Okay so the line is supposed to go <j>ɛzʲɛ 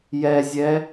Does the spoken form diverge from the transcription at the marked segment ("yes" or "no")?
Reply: no